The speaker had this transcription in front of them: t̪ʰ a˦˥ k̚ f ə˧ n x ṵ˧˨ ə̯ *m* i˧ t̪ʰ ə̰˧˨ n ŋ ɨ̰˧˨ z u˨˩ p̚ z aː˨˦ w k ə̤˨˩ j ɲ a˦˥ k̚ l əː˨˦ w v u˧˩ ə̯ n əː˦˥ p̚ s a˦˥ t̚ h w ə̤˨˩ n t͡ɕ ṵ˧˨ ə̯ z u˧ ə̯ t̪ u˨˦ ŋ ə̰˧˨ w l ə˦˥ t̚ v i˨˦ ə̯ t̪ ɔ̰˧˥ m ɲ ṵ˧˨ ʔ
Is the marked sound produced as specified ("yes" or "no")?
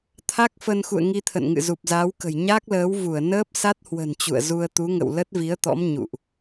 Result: no